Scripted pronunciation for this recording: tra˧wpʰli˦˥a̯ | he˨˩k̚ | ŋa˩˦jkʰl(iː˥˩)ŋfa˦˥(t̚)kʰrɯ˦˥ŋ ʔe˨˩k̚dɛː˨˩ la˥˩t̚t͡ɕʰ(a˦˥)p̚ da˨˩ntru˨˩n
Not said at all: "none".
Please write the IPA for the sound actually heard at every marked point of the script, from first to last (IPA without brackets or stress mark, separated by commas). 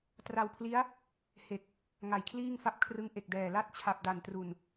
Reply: iː˥˩, p̚, a˨˩